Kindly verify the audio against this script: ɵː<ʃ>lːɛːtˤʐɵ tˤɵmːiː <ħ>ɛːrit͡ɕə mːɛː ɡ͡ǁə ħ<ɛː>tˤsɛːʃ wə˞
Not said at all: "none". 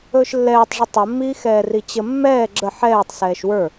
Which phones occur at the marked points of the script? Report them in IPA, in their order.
ʃ, x, ɛː

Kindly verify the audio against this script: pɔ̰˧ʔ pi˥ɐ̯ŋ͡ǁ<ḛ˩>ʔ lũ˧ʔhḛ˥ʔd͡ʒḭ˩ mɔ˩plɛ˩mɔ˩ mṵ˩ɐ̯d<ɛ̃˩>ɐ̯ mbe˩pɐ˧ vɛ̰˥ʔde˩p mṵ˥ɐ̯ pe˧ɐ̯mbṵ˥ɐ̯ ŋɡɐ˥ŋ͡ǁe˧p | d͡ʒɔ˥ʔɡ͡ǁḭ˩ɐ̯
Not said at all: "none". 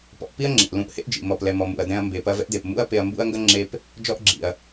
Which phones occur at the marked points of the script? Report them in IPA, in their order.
ḛ˩, ɛ̃˧

